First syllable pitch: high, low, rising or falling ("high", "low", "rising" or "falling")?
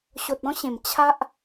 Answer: low